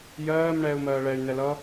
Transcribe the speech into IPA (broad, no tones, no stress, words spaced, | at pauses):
jɜːm ɳɛːu̯mɜːɭɛy̯ nɛlʌ